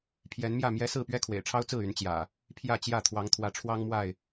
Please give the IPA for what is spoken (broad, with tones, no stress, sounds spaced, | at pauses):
pʰ j ɛ˨˦ n m j ä˥˨ m j ɛ˦ s ɹ̩˥˨ p ɥ ɛ˦ kʰ w ḛ˨˩ ɪ̯ ʈ͡ʂʰ ɑ˦ ʊ̯ t͡s ɹ̩˥˨ y˨˦ n t͡ɕ j ä̰˨˩ | pʰ j ä˥˨ t͡ɕ j ä˥˨ t̪ʰ w ɑ˨˦ ŋ t̪ʰ w ä˨˦ ʈ͡ʂʰ w ɑ˦ ŋ m w a˥˨ ɪ̯